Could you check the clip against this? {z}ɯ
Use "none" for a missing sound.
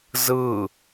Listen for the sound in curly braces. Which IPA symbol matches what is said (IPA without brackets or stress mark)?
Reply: z